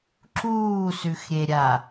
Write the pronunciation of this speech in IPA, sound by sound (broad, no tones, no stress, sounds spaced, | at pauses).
ǁ uː s ʉ x ɾʲ e ɾʲ a